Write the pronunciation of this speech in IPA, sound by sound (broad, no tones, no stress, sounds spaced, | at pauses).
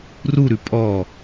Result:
r u ɾ ʉ pʼ ɔ